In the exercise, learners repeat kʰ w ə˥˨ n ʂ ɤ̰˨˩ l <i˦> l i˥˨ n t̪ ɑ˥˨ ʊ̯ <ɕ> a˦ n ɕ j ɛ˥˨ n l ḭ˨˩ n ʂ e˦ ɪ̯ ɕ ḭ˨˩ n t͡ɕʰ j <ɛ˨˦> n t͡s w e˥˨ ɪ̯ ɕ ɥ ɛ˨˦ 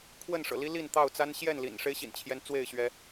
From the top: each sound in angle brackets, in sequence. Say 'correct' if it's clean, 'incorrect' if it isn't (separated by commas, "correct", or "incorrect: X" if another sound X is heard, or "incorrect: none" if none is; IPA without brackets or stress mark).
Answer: correct, incorrect: t͡s, incorrect: ɛ˦